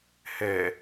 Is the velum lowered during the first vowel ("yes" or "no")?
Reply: no